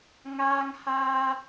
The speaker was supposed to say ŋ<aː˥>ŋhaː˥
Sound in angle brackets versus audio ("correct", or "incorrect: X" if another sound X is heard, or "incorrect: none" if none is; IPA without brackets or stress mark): correct